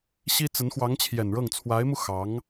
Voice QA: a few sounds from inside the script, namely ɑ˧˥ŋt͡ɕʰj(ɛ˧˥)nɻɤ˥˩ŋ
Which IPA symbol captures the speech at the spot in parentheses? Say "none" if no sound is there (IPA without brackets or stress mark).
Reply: ɛ˨˩